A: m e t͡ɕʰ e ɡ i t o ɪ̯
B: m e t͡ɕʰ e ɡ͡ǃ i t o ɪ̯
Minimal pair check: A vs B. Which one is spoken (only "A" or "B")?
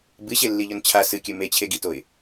A